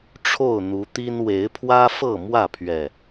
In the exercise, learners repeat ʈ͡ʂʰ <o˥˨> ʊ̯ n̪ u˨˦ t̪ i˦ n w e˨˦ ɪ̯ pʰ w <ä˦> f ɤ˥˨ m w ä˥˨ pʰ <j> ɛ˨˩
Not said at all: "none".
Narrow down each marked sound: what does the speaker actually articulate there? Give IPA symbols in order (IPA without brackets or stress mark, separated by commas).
o˥˨, ä˦, ɥ